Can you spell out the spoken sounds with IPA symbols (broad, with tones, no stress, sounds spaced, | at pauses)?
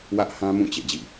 w ä˦ ʔ h ã˦ m ũ˦˨ t͡ɕ ḛ˦˨ d͡ʑ ḭ˦˨